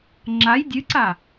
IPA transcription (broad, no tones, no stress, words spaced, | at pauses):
ŋ͡ǁaj dʲɨǀa